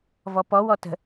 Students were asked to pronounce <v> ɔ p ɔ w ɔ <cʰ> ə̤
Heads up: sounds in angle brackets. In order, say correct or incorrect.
correct, incorrect: t

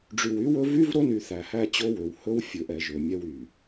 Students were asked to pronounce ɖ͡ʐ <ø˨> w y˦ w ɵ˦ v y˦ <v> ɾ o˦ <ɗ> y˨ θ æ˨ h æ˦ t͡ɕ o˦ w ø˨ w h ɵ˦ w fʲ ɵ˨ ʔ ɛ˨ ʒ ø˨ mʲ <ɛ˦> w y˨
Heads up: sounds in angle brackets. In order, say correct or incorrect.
incorrect: y˨, correct, incorrect: n, correct

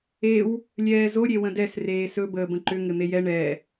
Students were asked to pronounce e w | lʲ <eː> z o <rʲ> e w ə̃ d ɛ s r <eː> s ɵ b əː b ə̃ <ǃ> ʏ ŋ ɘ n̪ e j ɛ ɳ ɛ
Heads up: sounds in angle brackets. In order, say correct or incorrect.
incorrect: ɛː, incorrect: ɾʲ, correct, correct

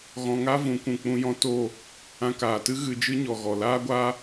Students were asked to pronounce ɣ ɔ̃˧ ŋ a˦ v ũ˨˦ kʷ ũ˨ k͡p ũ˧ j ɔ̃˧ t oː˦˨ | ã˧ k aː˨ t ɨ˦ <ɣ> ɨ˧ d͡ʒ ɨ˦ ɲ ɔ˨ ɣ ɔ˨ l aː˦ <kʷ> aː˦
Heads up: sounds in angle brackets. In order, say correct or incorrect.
correct, incorrect: ɡʷ

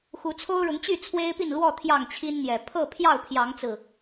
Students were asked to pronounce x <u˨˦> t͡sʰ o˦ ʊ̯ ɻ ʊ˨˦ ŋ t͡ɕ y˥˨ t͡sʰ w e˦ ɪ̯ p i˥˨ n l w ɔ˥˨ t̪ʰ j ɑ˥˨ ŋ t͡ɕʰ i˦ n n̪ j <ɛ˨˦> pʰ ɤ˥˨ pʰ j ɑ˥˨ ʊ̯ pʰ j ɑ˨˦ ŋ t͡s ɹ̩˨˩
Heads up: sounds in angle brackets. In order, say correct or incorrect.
correct, incorrect: ɛ˨˩

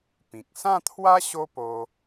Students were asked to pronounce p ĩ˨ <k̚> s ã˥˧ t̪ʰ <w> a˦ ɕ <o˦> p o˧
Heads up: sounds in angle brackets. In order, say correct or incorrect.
correct, correct, correct

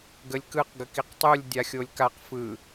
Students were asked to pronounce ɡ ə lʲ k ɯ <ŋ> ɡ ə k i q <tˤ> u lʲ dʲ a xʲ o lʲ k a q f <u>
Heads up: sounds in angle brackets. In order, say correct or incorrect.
incorrect: q, correct, incorrect: ɯ

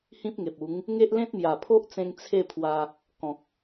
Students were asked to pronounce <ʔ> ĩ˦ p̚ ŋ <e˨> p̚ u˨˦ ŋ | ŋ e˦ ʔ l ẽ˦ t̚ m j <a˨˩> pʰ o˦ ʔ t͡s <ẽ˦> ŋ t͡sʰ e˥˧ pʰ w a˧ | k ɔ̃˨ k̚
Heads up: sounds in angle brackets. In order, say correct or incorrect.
incorrect: h, correct, correct, incorrect: ẽ˧

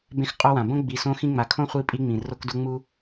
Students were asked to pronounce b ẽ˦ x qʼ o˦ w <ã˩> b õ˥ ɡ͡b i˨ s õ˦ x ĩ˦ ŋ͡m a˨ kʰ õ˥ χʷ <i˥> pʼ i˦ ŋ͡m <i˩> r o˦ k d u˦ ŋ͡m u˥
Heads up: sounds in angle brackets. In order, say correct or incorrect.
correct, incorrect: i˦, incorrect: ĩ˩

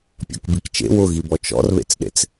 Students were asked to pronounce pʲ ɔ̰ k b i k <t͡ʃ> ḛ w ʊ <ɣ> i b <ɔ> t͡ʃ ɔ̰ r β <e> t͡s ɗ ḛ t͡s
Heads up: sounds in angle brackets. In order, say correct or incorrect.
correct, correct, correct, incorrect: ḛ

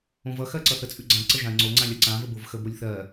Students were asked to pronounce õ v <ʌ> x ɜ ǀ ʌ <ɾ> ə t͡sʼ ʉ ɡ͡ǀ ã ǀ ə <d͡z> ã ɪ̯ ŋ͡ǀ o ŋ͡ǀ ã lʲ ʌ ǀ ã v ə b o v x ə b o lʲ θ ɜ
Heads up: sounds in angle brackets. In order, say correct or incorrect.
correct, incorrect: θ, incorrect: ʒ

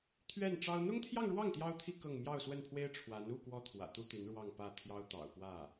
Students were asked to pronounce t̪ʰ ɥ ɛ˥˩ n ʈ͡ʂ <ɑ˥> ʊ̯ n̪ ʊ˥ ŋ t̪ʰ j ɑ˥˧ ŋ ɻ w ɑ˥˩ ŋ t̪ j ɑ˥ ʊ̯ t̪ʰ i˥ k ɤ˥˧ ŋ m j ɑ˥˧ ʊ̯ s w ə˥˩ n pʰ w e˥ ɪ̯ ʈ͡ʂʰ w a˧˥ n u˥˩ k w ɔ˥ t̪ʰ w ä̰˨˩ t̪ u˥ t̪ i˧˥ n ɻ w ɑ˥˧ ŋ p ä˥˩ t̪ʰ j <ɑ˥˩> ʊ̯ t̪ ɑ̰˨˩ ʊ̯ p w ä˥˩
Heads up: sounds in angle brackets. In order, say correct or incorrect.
correct, incorrect: ɑ˥

